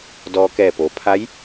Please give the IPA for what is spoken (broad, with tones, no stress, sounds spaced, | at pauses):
d ɔː˧ k ɛː˧˩ p o˩˧ pʰ a˧˥ j